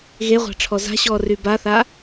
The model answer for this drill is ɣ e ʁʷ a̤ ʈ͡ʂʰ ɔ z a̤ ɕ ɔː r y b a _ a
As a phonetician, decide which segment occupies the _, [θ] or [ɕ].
θ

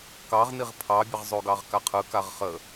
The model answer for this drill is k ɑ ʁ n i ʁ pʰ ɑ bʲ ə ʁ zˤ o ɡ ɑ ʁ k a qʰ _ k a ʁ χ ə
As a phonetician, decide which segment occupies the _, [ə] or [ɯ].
ɯ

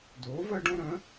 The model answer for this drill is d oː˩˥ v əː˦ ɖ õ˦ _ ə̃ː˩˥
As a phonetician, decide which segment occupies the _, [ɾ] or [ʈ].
ɾ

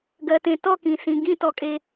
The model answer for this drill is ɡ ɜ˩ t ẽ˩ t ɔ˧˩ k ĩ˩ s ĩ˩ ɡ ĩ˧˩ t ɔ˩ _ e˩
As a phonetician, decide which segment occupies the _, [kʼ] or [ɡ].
kʼ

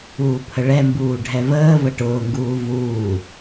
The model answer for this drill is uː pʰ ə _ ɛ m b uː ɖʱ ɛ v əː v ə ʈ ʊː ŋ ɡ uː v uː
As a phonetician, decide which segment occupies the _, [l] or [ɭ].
ɭ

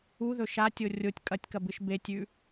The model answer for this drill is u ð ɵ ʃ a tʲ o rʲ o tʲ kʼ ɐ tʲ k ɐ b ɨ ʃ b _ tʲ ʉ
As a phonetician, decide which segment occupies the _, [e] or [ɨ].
e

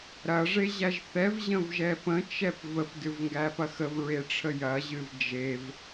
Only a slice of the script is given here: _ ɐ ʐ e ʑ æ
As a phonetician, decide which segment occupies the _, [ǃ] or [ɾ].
ɾ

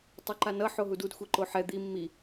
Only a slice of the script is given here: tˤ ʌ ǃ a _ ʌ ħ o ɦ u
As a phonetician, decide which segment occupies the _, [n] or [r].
n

